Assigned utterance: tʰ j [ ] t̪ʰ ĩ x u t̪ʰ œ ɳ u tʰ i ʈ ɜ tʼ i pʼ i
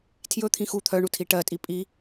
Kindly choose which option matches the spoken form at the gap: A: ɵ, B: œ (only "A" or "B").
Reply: A